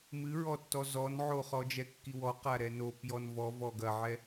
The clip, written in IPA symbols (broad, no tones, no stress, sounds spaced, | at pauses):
m ɨ ɹ ɔ tː ɔ z ɔ n ʕ o χ ɔ d͡ʒ ɛ kː i w ɔ q a ɾ ɛ n o p j ɔ n v ɔ v ɔ ɡ ɐ ʕ ɛ